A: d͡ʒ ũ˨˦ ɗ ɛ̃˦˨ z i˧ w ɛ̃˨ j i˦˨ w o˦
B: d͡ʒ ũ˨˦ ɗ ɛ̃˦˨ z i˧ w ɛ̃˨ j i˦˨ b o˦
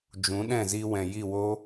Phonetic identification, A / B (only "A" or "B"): A